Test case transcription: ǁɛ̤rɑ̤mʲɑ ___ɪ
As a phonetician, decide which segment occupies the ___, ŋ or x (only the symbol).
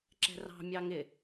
ŋ